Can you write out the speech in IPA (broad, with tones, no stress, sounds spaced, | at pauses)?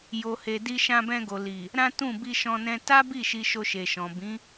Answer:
j o˨ h e˨ d i˧ ʃ ã˧ b ɛ̃˧ ɡ o˨ l i˨ | ɾ ã˦ t ũ˦˨ b i˧ ʃ ɔ̃˧ n ɛ̃˧ t a˦ b i˦˨ ʃ i˧ ʃ o˧ ʃ e˨ ʃ ɔ̃˨ b ĩ˨˦